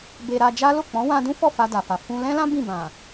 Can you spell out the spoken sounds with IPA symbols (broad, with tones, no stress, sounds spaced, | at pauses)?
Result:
b e˧ ɾ a˧ d͡ʒ a˦ l o˦˨ k͡p ɔ̃˨˦ w ã˧ d ũ˦ f ɔ˦˨ f a˧ d a˨ f a˨ f ũ˧ l ɛ̃˦ l ã˦ b ĩ˦˨ b ã˨